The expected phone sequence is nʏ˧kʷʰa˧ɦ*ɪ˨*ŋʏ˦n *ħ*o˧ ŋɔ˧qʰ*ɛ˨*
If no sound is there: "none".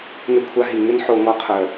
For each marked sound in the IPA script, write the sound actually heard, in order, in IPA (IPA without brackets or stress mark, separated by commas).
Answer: i˨, ħ, œ˨